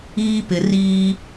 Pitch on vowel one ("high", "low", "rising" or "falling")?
high